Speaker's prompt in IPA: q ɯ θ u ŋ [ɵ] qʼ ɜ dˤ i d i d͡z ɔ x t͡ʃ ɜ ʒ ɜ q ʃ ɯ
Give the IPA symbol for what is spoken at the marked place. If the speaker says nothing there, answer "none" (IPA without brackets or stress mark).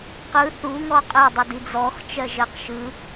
ɔ